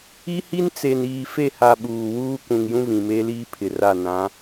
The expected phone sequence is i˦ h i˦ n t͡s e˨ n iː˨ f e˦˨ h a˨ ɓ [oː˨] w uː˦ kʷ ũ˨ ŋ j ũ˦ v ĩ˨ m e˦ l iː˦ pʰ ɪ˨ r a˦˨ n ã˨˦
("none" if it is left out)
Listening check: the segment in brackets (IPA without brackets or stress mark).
uː˨